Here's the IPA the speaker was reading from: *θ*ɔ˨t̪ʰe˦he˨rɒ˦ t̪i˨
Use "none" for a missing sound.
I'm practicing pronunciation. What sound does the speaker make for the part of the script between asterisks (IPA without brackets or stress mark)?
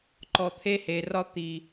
ǃ